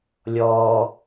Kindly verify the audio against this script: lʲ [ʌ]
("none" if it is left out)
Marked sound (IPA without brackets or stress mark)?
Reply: ɔ